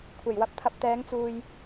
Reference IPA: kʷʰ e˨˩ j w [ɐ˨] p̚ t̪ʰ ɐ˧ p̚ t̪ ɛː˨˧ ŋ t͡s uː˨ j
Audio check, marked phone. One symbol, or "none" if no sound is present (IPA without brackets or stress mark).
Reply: ɐ˧